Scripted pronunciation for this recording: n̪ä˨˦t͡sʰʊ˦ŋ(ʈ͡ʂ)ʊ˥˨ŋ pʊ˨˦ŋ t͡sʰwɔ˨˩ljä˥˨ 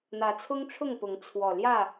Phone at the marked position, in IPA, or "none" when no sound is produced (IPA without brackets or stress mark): ʈ͡ʂʰ